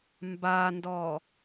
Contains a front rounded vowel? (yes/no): no